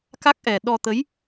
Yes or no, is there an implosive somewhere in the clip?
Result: yes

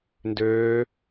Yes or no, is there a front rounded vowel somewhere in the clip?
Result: yes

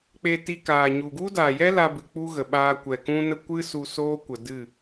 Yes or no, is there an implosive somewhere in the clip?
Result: yes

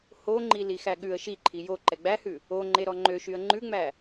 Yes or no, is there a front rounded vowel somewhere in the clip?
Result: yes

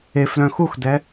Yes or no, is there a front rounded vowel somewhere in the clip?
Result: yes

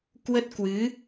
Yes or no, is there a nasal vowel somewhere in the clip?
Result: no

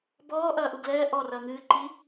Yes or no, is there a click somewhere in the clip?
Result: yes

